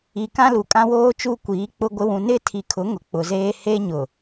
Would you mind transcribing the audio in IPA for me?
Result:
i˨ k ã˦ l u˨ kʼ ã˦ w oː˦ t͡ʃ u˦ kʷ iː˨˦ k͡p ʊ˦ ɡʷ ɪ˦ w ũ˨ n ɪ˦˨ tʰ i˨ kʰ ʊ˨˦ ŋ ʊ˨ k͡p ʊ˨ z eː˦ h e˦ ɲ ʊ˨

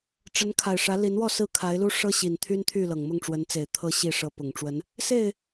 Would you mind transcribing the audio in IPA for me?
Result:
ʈ͡ʂ ə˨˦ n kʰ a˨˩ ɪ̯ ʂ ä˨˦ l i˨˦ n w ɔ˥˨ s ɹ̩˥˨ kʰ a˨˦ ɪ̯ l u˦ ʂ ɤ˦ ɕ i˨˩ n t̪ʰ y˦ n t̪ʰ y˥˨ l ɤ˨˩ ŋ m ʊ˥˨ ŋ ʈ͡ʂ w ə˨˦ n t͡s e˨˩ ɪ̯ t̪ʰ ɤ˥˨ ɕ i˥˨ ʂ ɤ˨˦ p ʊ˨˩ ŋ ʈ͡ʂ w ə˨˦ n | s e˥˨ ɪ̯

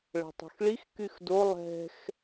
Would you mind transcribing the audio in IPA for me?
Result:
ɭ ə̤ tˤ o̤ x ɭ i x k y x d o lˠ ɛ̤ x

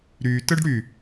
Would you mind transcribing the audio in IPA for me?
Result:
ɾ y t ə ɖ ɽ y

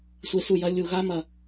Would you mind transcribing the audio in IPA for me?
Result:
sʷ e˧ s u˦˨ j ɐ˦ lʲ u˨ ɣ a˦ m ɐ˨

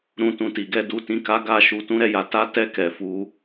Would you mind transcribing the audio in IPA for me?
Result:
ɾ ũ˨ t ũ˨ t i˨ ɡ ɛ˧ d u˧ t ĩ˧ k a˦ ɡ a˦˨ ʃ u˧ t ũ˦ ɾ ɛ˧ j a˧ t a˦ t ɛ˦ k ɛ˧ f u˦

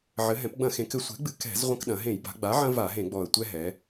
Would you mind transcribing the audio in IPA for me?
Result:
ʕ ɘ˩˧ ɦ ɛ̃˩˧ p ɡ͡b ɐ̃˧˩˧ x ẽ˩˧ k ɘ˩˧ sʷ ɛ̤˩˥ ɡ͡b ɨ˨˩ k ɛ̤˧˩˧ z ʁʷ ɐ̃˦ k ɗ ɐ̃˩˧ ɦ ẽ˧˩˧ j b a̤˩˧ ɡ͡b a˩˥ ʕ ɐ̃˦ v a˧˩˧ ɦ ẽ˧˩˧ ɡ͡b ɔ˨˩ ə̯ tʷ ɛ˦ ɦ ɛ˩˧

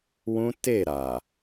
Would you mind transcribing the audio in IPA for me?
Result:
w ũ˦ t e˦˨ ɾ a˨

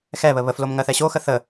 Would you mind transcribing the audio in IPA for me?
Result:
x ɛ β ə β ə f l o m ŋ ɜ θ ɛ ɕ o x ə θ ə

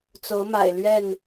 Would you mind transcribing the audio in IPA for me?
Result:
t͡s o˨˦ ʊ̯ m a̰˨˩ ɪ̯ l ɥ ɛ˥˨ n

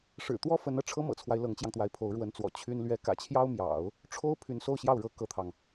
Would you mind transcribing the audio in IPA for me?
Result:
ʂ ɻ̩˨˩ t̪ w ɔ˥ f ə˧˥ n ɤ˧ ʈ͡ʂʰ ɤ˥ m ɤ̰˨˩ t͡sʰ w a˦ ɪ̯ l ɤ˧˥ ŋ t͡ɕ j ɑ˧ ŋ t̪ w a˧˥ ɪ̯ pʰ o˧˥ ʊ̯ ɻ w ə˧˥ n t͡s w ɔ̰˨˩ t͡ɕʰ y˥ n l ɥ ɛ˧˥ k ä̰˨˩ t͡ɕʰ j ɑ˥ ʊ̯ m j ɑ̰˨˩˦ ʊ̯ | ʈ͡ʂʰ o˥ ʊ̯ pʰ y˧˥ n s o˥˧ ʊ̯ ɕ j ɑ˥˩ ʊ̯ ɻ ɤ˥ k ɤ˥ t̪ʰ ɑ˨ ŋ

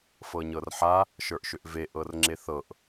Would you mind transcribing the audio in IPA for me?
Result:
f ɤ ɲ ɤ r ħ a | ʃ ə˞ ʔ ʃ ʏ ʔ v e ʔ ɤ r ŋ͡ǁ e θ ɤ ʔ

